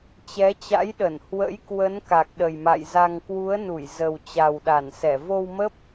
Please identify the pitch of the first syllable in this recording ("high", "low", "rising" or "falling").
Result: rising